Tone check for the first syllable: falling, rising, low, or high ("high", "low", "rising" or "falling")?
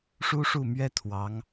high